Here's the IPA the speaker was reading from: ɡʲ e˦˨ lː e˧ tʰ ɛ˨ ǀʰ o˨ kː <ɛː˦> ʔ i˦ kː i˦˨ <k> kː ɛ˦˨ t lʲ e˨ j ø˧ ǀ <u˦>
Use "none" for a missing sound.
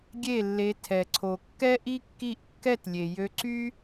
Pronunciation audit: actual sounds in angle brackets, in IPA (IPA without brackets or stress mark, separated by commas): ɛ˦, ʔ, y˦